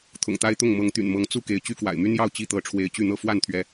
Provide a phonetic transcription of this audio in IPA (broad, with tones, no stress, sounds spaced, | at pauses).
t̪ʰ ʊ̰˨˩ ŋ t̪ a˦ ɪ̯ t̪ ʊ˥˨ ŋ m ɤ˨˦ ŋ t̪ y̰˨˩ n m ɤ˨˦ ŋ t͡s u˥˨ k e˨˦ ɪ̯ t͡ɕ y˦ k w a̰˨˩ ɪ̯ m y˦ n j ɑ˥˨ ʊ̯ t͡ɕ i˦ t̪ ɤ˨˦ ʈ͡ʂʰ w e˨˦ ɪ̯ t͡ɕ y˥˨ n̪ ɤ˥˨ f w a˥˨ n t̪ʰ ɥ ɛ˨˦